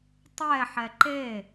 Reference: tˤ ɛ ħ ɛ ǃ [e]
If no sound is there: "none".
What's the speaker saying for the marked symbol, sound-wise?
e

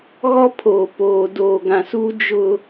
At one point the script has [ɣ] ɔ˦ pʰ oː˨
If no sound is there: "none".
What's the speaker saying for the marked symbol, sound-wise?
ɣ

